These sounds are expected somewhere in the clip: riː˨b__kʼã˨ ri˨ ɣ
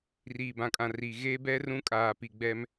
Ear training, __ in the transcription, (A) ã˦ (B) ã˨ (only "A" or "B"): B